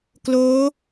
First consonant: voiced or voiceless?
voiceless